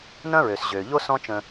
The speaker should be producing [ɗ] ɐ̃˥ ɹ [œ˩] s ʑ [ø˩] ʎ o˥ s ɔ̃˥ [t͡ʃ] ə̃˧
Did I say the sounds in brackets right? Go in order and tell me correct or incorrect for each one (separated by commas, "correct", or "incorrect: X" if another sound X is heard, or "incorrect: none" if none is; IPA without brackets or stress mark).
incorrect: n, incorrect: ø˩, correct, correct